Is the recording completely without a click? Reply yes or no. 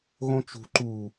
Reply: no